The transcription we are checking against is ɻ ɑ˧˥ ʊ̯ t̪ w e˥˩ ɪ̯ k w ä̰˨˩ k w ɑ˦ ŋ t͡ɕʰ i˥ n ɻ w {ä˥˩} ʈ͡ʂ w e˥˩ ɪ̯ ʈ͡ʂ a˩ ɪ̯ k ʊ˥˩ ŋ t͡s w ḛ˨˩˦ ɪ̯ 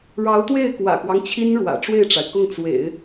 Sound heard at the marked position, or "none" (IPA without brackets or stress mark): ä̰˨˩